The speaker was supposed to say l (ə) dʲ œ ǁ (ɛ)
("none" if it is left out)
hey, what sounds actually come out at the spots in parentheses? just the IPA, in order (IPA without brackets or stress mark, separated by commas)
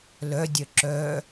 œ, œ